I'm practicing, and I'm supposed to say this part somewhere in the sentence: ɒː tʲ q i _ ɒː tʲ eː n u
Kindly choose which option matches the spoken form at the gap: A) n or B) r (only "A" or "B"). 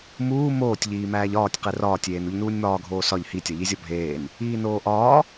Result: B